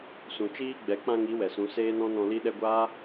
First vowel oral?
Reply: no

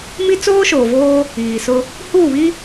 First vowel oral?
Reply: yes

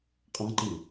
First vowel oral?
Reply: no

